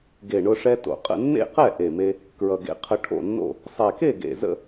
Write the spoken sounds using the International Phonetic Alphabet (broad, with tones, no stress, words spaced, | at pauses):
ɡe˨˩ɳʊ˧ʂɛ˧ to̰˨˩qʼə̰˥˨ nːḛ˥˨qɛ˥˨ ʔe˨˩me˧ | kɹʌ˨˩ɡḛ˧qʰə˧ ʈʰo̰˥˨nːo̰˥˨ | sˤɛ˨˩ke˥˨ɡḛ˨˩zə̰˥˨